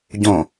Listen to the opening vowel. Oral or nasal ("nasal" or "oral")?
nasal